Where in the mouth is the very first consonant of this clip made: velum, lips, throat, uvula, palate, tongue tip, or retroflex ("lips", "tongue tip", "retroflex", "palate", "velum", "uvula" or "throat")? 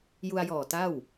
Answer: palate